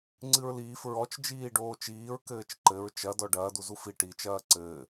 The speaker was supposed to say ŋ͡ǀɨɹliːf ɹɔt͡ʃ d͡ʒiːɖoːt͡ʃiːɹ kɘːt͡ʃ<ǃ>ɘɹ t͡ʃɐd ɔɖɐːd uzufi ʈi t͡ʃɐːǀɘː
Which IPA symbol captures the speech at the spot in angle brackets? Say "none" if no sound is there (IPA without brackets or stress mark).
ǃ